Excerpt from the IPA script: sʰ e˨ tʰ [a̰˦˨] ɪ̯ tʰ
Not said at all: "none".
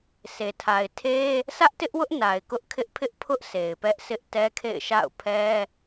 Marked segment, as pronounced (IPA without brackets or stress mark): a˨